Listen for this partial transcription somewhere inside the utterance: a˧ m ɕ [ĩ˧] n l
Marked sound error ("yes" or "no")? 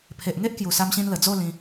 no